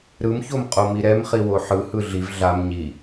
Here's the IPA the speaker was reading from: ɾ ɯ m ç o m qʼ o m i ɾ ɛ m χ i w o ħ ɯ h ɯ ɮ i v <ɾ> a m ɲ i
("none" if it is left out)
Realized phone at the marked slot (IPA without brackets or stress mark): ɮ